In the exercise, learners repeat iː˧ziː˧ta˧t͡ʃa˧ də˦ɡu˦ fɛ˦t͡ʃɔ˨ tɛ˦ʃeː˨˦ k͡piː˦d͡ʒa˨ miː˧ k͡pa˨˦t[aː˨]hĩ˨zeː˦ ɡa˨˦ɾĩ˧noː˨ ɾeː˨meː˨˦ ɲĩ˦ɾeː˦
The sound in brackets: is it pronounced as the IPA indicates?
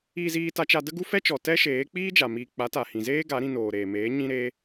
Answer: no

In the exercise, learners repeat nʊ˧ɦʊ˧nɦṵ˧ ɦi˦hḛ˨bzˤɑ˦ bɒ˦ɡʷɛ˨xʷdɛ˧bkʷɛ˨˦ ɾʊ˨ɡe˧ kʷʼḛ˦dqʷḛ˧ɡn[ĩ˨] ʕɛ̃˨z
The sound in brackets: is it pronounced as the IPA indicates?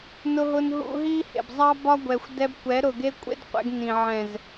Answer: yes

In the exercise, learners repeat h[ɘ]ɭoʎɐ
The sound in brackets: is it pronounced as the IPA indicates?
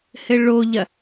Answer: yes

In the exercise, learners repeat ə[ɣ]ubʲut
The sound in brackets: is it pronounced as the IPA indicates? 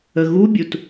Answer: yes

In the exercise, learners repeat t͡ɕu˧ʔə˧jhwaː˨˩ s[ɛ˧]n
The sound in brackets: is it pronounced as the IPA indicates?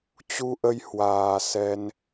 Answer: yes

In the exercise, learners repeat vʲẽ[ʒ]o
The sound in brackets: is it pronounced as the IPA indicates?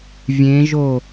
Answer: yes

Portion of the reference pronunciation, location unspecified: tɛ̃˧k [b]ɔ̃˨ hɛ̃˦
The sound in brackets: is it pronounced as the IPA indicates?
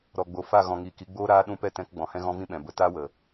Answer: no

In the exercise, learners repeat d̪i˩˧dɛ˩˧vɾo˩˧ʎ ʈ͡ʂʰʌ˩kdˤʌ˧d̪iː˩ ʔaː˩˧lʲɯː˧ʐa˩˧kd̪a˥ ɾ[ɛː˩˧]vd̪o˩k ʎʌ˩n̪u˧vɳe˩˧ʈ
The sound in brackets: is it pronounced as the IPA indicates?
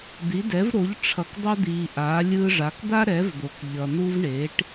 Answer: no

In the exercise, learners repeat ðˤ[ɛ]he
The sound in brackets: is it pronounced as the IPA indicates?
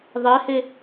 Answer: yes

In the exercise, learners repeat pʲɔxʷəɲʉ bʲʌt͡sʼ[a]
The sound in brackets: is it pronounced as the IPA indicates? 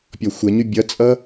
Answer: no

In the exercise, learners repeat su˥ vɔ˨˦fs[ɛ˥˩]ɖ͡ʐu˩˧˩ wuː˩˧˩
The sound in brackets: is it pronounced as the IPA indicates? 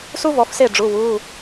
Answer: no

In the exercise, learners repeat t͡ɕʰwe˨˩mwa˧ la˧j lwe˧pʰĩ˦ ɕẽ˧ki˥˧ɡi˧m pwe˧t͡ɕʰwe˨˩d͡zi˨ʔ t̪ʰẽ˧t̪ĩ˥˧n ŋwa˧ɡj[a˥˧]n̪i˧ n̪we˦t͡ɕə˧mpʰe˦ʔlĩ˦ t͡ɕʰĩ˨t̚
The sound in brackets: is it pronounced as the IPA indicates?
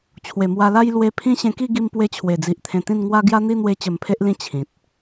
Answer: no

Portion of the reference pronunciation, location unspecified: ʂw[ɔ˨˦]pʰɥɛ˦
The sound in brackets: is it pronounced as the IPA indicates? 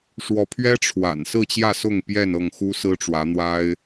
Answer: yes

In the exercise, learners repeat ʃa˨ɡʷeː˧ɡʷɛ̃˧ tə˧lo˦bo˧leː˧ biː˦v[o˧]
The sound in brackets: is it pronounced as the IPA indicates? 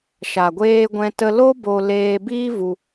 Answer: no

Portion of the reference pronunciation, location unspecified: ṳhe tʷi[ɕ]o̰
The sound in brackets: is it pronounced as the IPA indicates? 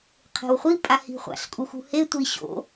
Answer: yes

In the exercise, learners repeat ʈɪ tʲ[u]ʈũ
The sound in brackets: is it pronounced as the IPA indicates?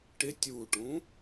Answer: yes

